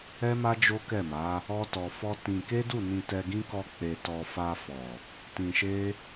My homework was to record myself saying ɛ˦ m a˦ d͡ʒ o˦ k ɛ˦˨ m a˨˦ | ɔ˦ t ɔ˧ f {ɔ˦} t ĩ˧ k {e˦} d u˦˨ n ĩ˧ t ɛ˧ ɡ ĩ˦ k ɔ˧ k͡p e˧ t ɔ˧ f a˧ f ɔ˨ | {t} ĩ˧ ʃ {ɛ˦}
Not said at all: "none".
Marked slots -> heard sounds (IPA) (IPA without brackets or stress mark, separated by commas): ɔ˦, e˦, t, e˦